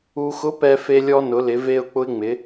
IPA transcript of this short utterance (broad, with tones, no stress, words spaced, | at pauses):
u˧xʊ˧˥ pɛ˧fe˧lʲɔ˧ nʊ˩˧lɪ˩˧ve˧ʊ̯ k͡pʊ˧ɪ̯ŋ͡mɪ˩˧